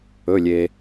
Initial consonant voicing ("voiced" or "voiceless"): voiced